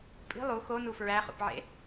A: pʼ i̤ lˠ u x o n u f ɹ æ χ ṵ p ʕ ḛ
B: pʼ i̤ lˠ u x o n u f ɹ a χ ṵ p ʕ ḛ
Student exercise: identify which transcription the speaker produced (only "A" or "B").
A